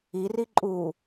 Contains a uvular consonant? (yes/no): no